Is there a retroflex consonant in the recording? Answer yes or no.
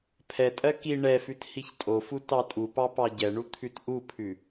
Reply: yes